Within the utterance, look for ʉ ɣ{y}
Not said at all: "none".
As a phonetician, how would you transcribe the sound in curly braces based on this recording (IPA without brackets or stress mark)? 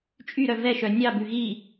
i